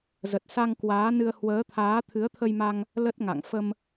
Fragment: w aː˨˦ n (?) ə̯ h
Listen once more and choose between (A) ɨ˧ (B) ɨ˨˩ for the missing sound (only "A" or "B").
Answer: A